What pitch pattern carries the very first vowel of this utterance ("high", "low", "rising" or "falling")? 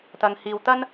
low